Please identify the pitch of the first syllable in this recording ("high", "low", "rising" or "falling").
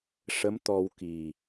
rising